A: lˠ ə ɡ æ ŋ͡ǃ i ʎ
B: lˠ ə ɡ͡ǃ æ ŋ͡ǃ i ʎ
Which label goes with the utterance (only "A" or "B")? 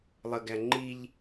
A